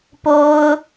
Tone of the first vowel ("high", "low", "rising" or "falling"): high